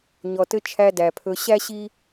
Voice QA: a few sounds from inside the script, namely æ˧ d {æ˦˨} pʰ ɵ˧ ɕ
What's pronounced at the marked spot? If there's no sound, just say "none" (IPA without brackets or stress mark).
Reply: æ˨